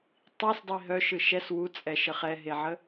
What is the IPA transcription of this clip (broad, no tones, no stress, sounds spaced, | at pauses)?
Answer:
tˤ i s dˤ i ɦ œ ʃ ɯ ʃ ɛ s w u t͡sʼ ɛ ʃ ə χ ɛ ɦ e ʕ ə